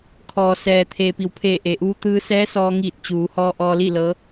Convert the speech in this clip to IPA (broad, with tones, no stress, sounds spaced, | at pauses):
kʰ ɔː˩ s ɛː˩ t̪ʰ eː˩ p i˩˧ w pʰ eː˧˩ ʔ e˩ ʔ uː˧ t̪ ɯː˧ s ɛː˧˥ s ɔː˧ ŋ iː˧˩ t̚ t͡ɕ uː˩˧ h ɔː˧ ʔ ɔː˧ l i˥˨ l ɤː˧˥